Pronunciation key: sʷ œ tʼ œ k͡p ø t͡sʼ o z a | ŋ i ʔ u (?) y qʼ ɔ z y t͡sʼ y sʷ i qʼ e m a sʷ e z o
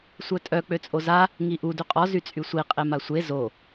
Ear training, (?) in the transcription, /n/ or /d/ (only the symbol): d